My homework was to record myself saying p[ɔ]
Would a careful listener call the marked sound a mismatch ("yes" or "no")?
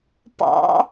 yes